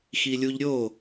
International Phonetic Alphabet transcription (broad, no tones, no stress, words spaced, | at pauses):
xilʲuʎ ɾʲo